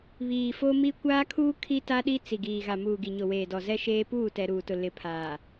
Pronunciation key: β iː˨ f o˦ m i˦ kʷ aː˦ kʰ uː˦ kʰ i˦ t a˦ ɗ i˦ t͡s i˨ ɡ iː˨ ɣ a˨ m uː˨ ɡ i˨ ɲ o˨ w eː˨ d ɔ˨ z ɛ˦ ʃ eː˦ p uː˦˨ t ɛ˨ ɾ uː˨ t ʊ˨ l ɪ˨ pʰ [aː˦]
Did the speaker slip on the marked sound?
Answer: yes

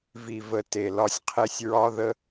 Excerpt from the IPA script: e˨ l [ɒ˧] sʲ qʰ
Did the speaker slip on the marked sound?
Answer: no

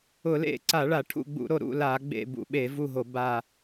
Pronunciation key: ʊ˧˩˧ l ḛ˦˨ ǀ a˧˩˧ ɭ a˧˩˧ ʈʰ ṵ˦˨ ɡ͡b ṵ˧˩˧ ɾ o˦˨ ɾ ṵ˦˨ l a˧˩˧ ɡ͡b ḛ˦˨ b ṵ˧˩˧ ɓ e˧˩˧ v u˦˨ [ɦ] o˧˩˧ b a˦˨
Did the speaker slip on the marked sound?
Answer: no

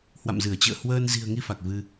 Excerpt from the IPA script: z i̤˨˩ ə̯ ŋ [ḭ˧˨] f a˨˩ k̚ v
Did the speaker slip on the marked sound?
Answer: yes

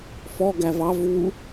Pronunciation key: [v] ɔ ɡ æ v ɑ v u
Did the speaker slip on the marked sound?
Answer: yes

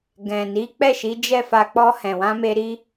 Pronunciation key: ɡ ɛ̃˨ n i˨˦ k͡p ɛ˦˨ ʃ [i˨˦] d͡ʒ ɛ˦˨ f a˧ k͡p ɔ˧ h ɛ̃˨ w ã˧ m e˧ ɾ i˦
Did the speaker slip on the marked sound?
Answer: no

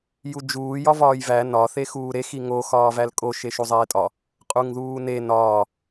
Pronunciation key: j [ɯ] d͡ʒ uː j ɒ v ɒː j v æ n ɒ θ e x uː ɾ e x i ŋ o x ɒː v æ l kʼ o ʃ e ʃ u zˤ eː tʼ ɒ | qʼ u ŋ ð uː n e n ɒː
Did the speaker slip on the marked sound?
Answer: yes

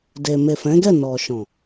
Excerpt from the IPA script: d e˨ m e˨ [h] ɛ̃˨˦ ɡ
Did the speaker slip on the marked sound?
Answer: yes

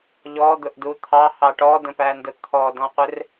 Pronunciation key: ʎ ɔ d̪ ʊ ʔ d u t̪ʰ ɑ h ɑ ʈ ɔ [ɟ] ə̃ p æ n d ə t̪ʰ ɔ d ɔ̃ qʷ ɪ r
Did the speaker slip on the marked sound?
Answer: yes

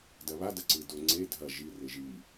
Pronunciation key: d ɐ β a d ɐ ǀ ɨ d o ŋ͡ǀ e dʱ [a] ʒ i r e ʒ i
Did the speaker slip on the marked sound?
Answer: yes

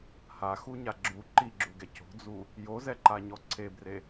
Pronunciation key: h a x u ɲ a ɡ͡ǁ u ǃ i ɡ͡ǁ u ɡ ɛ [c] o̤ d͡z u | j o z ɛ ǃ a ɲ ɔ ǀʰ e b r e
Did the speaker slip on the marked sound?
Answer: no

